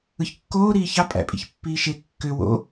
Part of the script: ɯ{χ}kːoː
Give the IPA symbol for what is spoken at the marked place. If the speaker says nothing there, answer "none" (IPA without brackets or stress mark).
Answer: ç